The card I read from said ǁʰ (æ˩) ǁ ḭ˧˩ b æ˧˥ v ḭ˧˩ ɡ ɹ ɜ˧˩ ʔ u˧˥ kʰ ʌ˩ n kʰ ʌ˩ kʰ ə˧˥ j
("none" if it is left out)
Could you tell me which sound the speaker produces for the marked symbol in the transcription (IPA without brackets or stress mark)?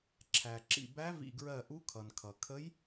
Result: æ˩